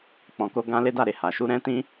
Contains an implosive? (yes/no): no